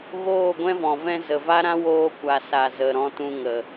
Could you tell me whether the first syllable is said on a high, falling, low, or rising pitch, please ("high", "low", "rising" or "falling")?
falling